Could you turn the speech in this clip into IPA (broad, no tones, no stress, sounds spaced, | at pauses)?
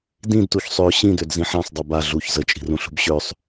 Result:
d ĩ d t u ç sˤ ø ɕ ĩ d ø d z ĩ ħ ã sˤ dˤ ø b a ɮ u ç z ə t͡ʃʼ i̤ r ũ ɬ ṳ b ɕ ø sˤ